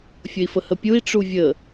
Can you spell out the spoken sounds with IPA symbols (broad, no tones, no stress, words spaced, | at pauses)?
fʲəi̯fəhəpʲui̯ ʈ͡ʂuvʲə